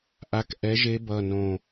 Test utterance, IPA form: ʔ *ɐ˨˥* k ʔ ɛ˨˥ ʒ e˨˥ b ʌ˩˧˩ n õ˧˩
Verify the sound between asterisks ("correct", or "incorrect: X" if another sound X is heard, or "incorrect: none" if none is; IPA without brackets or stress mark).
incorrect: a˨˥